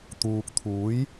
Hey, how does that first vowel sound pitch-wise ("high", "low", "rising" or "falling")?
low